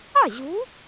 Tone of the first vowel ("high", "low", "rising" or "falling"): falling